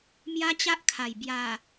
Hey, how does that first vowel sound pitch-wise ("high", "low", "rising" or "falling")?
high